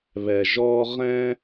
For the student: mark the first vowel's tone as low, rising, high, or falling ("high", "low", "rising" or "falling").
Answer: low